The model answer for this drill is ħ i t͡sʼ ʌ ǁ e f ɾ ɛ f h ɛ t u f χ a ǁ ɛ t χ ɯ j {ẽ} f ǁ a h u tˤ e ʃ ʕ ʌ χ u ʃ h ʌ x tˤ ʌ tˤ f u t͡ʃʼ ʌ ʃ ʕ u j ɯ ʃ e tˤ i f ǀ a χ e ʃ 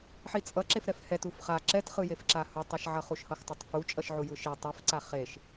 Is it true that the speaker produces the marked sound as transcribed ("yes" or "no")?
no